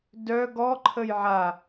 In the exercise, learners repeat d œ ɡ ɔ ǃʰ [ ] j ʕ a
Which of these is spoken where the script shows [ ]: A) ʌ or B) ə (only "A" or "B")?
B